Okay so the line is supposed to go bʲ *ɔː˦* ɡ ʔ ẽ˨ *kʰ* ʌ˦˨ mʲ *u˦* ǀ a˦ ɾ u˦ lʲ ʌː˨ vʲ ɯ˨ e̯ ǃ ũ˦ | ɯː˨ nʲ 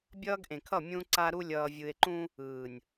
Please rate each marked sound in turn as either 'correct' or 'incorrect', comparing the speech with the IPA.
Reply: incorrect: ʌː˦, correct, incorrect: ũ˦

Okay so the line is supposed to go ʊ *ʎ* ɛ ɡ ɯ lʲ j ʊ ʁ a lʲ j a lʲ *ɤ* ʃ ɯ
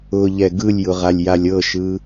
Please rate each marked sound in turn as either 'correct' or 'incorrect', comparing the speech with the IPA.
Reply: correct, correct

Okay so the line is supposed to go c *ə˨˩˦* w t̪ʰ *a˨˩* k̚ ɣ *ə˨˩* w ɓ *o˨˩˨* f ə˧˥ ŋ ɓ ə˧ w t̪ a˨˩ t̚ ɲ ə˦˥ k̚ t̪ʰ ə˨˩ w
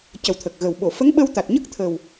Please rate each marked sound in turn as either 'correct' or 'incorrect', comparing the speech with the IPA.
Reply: incorrect: ə˨˩, incorrect: ə˨˩, correct, correct

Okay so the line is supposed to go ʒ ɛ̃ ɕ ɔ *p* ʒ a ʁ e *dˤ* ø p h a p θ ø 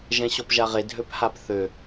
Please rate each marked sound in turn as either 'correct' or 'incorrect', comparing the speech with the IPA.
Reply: correct, incorrect: dʱ

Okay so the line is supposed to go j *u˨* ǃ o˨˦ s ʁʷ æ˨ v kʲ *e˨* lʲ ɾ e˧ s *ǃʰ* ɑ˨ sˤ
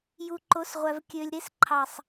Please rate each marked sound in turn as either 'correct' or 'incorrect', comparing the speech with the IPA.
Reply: correct, incorrect: ø˨, correct

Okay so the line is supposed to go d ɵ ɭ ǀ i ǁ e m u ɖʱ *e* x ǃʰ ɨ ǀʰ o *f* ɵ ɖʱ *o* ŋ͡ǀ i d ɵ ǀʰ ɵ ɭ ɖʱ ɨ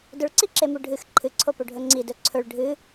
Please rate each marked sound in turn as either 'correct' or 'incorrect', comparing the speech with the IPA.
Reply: incorrect: ɨ, incorrect: p, incorrect: ɵ

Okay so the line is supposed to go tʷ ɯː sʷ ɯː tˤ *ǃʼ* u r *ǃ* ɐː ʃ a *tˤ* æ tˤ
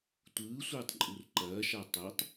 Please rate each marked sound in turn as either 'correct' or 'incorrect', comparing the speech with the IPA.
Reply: correct, correct, correct

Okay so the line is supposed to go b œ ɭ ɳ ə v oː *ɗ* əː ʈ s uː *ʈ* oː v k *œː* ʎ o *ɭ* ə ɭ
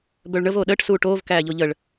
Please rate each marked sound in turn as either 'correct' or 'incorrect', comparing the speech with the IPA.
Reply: correct, correct, incorrect: æː, incorrect: ʎ

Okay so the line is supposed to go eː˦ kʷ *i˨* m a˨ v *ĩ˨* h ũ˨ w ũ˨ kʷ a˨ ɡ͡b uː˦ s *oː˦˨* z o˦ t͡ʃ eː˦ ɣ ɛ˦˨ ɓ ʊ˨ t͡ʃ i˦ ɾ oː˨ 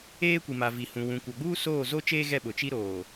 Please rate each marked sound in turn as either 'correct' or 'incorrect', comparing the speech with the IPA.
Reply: correct, incorrect: i˨, correct

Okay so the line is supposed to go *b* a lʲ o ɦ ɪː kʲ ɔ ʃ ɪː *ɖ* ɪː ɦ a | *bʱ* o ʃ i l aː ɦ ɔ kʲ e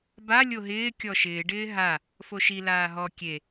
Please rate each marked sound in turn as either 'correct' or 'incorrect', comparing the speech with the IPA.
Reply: correct, correct, incorrect: f

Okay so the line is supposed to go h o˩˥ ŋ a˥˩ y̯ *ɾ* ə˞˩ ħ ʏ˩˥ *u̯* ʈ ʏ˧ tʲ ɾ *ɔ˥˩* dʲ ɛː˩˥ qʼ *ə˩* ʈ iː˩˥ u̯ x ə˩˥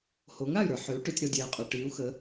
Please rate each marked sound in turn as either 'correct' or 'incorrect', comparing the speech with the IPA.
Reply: correct, correct, incorrect: ɔ˧, incorrect: ɔ˩

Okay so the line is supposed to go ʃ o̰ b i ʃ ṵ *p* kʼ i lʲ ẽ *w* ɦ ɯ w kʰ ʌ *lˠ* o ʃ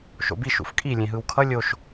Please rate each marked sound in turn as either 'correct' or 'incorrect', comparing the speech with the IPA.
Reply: incorrect: f, incorrect: none, incorrect: lʲ

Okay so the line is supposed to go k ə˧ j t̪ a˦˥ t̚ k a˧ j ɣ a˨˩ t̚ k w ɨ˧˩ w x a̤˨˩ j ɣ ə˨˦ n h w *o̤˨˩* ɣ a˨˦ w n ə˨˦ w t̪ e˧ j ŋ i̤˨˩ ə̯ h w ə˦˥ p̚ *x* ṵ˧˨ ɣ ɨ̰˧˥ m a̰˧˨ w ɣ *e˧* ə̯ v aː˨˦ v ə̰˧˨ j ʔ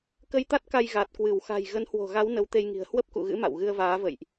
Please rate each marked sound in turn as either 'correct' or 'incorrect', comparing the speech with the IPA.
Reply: correct, incorrect: k, incorrect: ɨ˧

